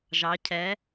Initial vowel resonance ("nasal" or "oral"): oral